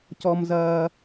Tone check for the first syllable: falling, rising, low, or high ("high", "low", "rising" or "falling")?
low